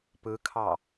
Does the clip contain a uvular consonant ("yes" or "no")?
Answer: no